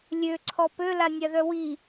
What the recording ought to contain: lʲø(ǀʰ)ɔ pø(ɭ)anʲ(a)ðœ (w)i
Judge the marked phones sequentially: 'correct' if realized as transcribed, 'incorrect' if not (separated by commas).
correct, incorrect, correct, correct